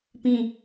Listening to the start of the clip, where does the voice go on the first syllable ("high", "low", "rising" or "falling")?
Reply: falling